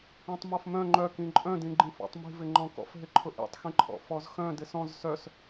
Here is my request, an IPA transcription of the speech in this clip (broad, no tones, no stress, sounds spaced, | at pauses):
ĩ tˤ m ɔ f m œ̃ ŋ͡ǃ œ k ĩ ǃʼ œ̃ d ĩ ɡ͡ǃ ĩ f ɔ̰ tˤ m i̤ v ɪ ŋ͡ǃ ɔ̃ k ɔ̰ f ɦ ɪ ǃʰ ʊ ʔ ḭ tˤ x ĩ ǃʰ ɔ̰ f ɔ z x œ̃ d ɪ s ɔ̃ z s œ s